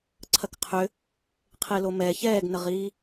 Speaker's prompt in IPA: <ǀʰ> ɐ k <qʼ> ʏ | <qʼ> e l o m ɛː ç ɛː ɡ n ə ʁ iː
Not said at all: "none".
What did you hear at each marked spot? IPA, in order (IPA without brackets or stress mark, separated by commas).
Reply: ǀʰ, qʰ, qʰ